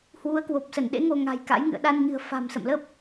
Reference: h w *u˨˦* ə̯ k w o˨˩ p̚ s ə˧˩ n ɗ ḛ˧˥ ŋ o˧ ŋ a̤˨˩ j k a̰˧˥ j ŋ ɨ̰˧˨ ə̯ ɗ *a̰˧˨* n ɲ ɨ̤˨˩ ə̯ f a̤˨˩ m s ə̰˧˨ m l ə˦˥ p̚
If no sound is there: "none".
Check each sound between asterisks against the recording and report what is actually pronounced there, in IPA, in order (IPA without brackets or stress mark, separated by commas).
u˨˦, a˧